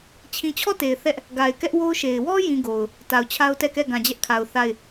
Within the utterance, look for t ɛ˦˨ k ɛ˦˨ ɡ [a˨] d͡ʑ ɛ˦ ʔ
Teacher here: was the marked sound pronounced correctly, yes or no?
no